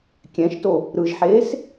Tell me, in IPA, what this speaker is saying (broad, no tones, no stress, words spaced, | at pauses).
kʲɛ̃ʃto | ɾɯʒħeːs